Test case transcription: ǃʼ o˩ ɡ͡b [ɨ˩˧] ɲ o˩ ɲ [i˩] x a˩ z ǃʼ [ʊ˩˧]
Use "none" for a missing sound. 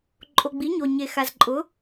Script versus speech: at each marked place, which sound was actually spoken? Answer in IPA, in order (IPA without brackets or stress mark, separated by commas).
i˩˧, e˩, ʊ˩˧